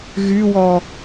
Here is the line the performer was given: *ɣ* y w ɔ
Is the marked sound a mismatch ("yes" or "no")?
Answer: no